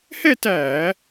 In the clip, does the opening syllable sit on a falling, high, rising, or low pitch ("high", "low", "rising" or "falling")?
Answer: falling